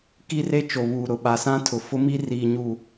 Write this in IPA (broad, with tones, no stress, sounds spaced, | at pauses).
k i˦ r e˦ t͡ʃ o˨ β uː˨ ɾ ʊ˨ ɓ a˨ s ã˦ tʰ ʊ˨ f ʊ˦ m i˦ r iː˨ ɲ uː˨